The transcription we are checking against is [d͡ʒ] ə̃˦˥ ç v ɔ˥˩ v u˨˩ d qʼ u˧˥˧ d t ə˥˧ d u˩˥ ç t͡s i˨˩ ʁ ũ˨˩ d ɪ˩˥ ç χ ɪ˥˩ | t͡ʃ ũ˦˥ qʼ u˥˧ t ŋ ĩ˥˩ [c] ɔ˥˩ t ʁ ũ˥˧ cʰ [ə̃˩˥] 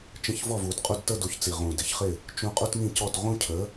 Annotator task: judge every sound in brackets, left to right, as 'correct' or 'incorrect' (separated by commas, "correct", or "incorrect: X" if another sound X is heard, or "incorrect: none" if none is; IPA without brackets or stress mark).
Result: incorrect: t͡ʃ, correct, incorrect: ə˩˥